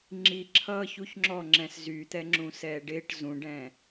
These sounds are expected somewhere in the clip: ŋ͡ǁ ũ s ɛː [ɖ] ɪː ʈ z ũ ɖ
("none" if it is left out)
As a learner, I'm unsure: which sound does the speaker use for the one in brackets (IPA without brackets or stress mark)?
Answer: ɖ